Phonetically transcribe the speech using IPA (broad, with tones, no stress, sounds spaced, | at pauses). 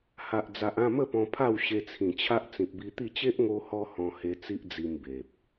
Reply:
h a˨ ʔ d͡z a˨ ʔ ã˥˧ m ə˥˧ p ɔ̃˧ pʰ a˥˧ w ɕ e˧ t͡sʰ ĩ˨˩ t͡ɕʰ a˦ ʔ t͡s ĩ˨ p̚ b i˧ t̪ i˥˧ t͡ɕ e˦ ʔ ŋ o˧ h ɔ˧ h ɔ̃˧ h e˧ t͡s i˦ ʔ d͡z i˧ m b e˨ p̚